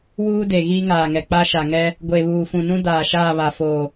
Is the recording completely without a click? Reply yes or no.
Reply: yes